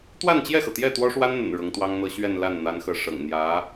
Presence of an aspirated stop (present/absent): absent